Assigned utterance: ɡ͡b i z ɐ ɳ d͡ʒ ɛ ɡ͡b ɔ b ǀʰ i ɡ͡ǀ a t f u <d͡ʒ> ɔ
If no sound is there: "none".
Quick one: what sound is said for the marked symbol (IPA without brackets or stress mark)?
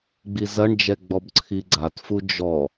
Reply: d͡ʒ